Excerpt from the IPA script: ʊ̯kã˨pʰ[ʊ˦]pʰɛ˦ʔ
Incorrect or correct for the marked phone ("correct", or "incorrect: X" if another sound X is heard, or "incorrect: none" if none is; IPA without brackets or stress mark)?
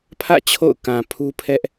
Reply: incorrect: u˦